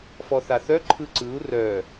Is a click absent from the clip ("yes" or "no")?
no